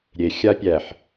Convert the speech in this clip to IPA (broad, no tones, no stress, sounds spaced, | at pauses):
ɾʲ e xʲ a pʲ æ ħ